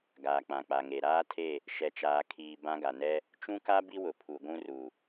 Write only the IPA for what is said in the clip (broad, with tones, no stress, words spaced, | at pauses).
ɡaː˨k͡pã˨k͡pa˨ŋe˨ ɾaː˦tʰe˦˨ | ʃɛ˨t͡ʃaː˨ kʰiː˨ bã˦ɡa˨ nɛ˦ | t͡ʃũ˦ka˦ bi˦wʊ˨ pʰu˨ɡʷũ˦ru˨